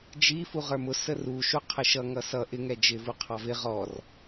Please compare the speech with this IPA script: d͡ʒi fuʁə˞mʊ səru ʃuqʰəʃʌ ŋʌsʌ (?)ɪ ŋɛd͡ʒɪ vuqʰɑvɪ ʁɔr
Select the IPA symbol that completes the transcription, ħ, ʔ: ʔ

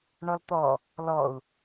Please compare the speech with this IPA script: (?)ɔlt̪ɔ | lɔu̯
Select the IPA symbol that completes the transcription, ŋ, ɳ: ɳ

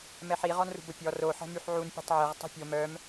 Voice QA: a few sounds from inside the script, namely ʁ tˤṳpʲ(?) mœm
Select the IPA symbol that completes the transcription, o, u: o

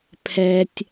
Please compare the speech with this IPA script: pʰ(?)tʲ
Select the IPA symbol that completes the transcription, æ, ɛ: ɛ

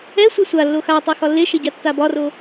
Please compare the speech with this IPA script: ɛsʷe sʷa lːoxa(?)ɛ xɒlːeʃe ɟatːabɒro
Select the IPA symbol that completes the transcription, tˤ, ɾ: tˤ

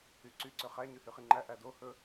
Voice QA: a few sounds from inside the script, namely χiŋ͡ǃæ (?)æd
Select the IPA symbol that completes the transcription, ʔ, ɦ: ʔ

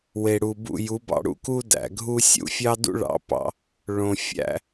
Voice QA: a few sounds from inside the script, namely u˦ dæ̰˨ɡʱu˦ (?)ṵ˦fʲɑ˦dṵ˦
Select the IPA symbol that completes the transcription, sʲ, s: sʲ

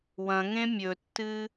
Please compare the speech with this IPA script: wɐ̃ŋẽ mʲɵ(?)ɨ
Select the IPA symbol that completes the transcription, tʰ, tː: tː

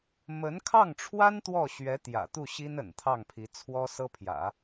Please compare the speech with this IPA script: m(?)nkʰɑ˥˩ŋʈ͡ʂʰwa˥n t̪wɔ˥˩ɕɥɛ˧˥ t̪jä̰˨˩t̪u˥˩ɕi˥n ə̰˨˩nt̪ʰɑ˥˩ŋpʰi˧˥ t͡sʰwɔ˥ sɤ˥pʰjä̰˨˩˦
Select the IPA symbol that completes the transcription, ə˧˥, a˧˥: ə˧˥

